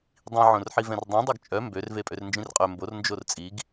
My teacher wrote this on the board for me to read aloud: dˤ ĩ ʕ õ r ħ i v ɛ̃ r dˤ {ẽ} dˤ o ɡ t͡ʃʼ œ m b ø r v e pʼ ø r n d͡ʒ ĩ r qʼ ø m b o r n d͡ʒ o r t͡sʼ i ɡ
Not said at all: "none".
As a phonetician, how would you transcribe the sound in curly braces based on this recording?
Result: ẽ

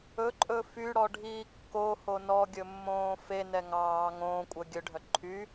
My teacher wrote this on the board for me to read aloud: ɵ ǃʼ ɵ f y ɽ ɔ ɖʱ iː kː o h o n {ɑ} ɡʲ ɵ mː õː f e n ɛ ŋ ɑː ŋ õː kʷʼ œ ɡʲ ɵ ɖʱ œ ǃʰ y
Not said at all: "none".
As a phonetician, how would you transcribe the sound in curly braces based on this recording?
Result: ɔ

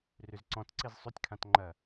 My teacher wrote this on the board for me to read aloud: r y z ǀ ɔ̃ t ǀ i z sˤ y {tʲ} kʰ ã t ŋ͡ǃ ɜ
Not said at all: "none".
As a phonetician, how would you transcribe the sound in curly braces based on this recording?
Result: tʲ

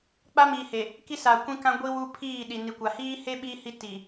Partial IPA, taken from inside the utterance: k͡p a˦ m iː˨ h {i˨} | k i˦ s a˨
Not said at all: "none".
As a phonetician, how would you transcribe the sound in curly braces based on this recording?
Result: e˨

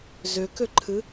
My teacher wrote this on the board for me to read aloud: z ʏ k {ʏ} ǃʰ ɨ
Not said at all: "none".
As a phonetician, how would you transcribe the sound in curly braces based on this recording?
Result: ʏ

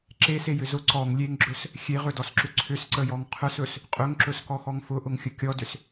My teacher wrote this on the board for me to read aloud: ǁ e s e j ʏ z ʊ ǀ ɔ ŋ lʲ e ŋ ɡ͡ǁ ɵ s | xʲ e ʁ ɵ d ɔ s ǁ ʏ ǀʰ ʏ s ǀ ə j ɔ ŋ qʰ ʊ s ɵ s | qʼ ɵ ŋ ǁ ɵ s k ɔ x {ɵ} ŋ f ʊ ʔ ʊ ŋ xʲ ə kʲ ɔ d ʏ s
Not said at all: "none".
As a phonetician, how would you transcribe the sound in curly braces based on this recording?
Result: ɔ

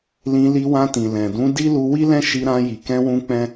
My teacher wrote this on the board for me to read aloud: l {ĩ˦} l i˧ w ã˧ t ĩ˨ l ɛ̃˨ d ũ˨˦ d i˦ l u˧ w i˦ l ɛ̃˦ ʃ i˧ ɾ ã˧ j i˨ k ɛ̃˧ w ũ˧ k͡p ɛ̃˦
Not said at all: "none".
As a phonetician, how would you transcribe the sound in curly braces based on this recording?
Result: ĩ˧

